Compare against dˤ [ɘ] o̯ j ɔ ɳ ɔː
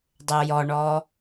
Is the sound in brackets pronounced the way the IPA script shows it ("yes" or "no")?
yes